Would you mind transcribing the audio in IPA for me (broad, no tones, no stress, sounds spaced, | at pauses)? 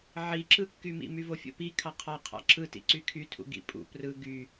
ʕ i ǁ ɯ kː y m ḭ m y v o fʲ o̰ p i kʰ ɑ qʰ ɑ qʰ ɑ̰ ǁ ɯ t ḭ ǀ y kʰ y tʰ ṵ ɡ ḭ pʼ ṵ p r ɯ ɡ y